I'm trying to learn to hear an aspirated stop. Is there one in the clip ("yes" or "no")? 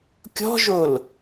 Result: no